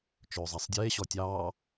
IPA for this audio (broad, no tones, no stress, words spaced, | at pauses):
t͡ʃɵːzˤasˤdʲeː ɕɔtʲɑː